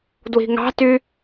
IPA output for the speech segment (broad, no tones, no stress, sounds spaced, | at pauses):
d w i̤ ŋ ɑ̤ t y